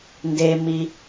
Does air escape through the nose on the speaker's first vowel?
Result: no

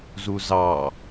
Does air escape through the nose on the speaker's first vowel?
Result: no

